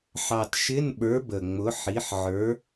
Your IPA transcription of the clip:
ħɑ˨˩tʃɪ˧˥˧nɓə˞˨˥ bə˨˩ŋ͡mʊ˨˥ ħi˨˥ħʕə˞˨˥

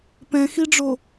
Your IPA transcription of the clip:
pɛ̃xiɖ͡ʐo

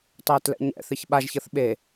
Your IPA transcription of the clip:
tˤeːtlɛ̰ɲɛ̰θɨç ɓaʒçɤθ ɓe

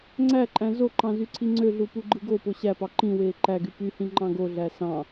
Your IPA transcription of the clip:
ŋ͡ǀæǃʼæ̃ zoǃɑ̃ zyǀʰiŋ͡ǀøɮu puɡ͡ǃɯɡopo ɕæpɑ ǃĩweː ǃæɡy pyhĩ ŋ͡ǃɑ̃ɡoɮæ sɑ̃

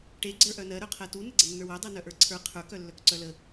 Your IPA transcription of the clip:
ʈe ɡ͡ǀə˞ʔœnɜ ɾœqʰɜtu nəɡ͡ǀənːə˞wœ dˤɜnœʔə˞ǀʰə˞ qʰə˞k œlːœkǀœlə

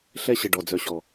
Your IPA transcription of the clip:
ɬɛ˧ɕə˨ ɖɔ˨d͡zœ˨ɕɔ˨

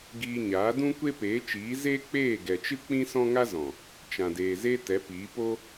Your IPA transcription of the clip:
ɡiː˧ɲaː˨˦ dũ˦kʷe˦peː˨˦t͡ʃiː˨˦ zeː˦k͡peː˦˨ɡɛ˨t͡ʃɨ˦ k͡pĩ˦sɔ̃˦ŋa˦zɔ̃˨ | t͡ʃã˨deː˨ze˦ tɛ˨˦piː˨˦po˦

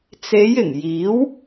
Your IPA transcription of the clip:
t͡se˨˧jɪ˨˩ŋ jiː˨˥w

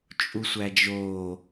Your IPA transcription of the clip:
t͡ʃʼusʷæd͡ʒoː

